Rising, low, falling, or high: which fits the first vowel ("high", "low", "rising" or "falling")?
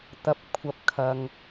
low